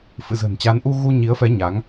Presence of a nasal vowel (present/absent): absent